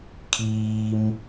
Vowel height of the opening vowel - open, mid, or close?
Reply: close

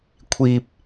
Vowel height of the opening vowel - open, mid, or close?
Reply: close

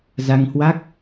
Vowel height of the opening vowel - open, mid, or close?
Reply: open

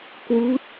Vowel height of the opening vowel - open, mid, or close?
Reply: close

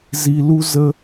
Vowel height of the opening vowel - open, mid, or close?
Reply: close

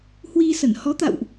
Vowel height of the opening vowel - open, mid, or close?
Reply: close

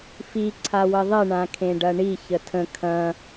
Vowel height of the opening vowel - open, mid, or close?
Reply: close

